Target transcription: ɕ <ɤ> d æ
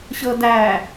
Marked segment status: correct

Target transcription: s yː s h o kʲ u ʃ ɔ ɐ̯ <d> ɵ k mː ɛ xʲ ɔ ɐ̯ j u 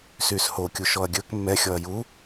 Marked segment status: incorrect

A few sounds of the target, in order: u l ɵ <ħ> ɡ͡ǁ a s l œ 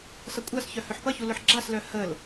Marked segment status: correct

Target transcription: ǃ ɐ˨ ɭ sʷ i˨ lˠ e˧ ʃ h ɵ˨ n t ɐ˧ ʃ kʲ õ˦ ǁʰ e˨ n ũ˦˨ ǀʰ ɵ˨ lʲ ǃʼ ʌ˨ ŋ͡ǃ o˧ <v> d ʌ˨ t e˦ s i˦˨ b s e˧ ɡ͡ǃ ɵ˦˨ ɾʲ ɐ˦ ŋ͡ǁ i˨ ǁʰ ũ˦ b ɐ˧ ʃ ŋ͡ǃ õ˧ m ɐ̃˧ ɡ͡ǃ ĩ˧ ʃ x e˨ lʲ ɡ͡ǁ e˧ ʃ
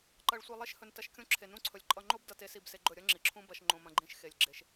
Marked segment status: incorrect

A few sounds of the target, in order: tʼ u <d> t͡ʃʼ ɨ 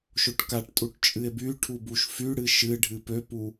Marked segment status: incorrect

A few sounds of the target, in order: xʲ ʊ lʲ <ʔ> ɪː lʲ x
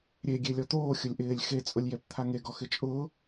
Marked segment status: correct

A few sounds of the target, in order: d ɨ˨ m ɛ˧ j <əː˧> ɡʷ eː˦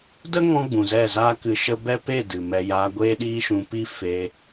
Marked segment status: incorrect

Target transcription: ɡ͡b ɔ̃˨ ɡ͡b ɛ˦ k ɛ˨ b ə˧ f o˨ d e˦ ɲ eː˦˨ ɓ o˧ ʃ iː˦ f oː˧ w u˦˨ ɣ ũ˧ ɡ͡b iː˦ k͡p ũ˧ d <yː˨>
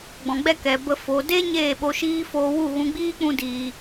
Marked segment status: incorrect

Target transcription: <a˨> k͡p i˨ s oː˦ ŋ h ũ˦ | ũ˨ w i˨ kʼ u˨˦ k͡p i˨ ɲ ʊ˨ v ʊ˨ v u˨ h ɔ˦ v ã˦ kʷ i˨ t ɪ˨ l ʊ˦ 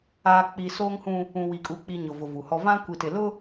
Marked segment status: incorrect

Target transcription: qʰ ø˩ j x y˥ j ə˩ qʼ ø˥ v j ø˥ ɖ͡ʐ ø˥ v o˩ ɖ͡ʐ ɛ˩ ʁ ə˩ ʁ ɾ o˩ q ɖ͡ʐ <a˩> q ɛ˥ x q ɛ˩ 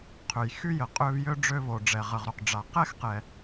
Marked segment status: correct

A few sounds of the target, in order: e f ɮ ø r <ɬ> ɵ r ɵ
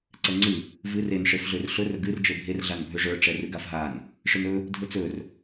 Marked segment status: correct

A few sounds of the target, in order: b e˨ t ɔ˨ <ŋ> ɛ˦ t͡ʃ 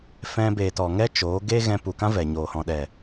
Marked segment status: correct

